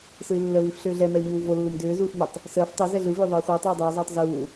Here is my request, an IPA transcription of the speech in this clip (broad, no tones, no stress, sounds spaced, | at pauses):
s ɯ i̯ lː ə v i f ɬ ʏː ɮ ɛ m ɛ u̯ ɲ uː v o lː ɯ m d ʏː z uː f m ʏ tˤ | s əː f tˤ ɛ z ɛ ɮ ɯ v ʏː ðˤ ɯː χʷ ɯ u̯ tˤ uː dˤ ʏː zˤ ɯː tˤ z uː